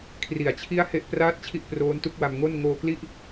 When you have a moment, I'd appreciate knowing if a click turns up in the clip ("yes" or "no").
no